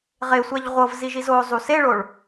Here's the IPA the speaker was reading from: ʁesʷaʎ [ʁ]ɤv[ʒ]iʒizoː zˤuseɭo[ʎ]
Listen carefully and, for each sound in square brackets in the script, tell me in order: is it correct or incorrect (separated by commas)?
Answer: incorrect, incorrect, incorrect